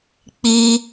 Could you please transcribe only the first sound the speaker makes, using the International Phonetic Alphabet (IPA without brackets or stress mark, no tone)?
k͡p